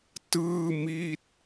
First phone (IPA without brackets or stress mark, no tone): t